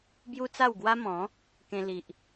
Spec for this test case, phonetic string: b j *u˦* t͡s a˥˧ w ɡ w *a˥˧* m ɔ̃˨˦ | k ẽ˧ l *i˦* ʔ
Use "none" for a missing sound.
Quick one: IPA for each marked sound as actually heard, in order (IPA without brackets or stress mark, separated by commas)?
u˦, a˦, i˨